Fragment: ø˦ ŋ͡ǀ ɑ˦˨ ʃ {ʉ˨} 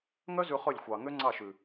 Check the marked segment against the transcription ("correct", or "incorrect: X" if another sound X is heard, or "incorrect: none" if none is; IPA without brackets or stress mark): correct